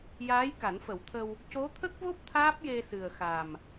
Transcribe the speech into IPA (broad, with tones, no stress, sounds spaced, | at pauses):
j aː˧˥ j k a˨˩˦ n f ə˨˩˦ w t̪ʰ ə˧ w | c o˧˥ t̪ʰ ə˦˥ k̚ v o˦˥ p̚ t̪ʰ aː˦˥ p̚ j e˧ s ɨ˨˩ ə̯ x a˨˩ m